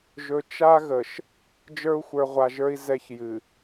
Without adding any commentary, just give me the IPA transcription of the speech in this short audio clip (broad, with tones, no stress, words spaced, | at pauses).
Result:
ʒɵ˨ t͡ʃa˦ ɣə˨ʃ | d͡ʒə˞˦u̯xʷə˞˨ʁʷa˨ʒə˞˦i̯ zɛ˦çjɨ˨